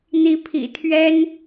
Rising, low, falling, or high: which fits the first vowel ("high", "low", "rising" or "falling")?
rising